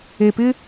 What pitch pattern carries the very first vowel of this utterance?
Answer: low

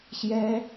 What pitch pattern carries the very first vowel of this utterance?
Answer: high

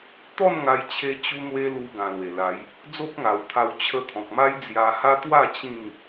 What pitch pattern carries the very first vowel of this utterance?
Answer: falling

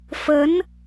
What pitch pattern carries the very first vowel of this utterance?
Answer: rising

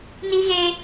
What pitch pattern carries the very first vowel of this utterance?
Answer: high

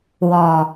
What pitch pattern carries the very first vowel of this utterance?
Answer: low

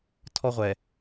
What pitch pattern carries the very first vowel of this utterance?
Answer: high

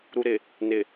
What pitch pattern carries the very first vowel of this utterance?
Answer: low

